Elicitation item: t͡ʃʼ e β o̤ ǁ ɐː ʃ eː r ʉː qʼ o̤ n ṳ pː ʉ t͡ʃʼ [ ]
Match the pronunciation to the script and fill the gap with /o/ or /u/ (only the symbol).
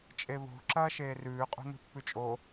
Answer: o